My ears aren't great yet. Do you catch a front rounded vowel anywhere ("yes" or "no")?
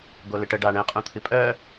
yes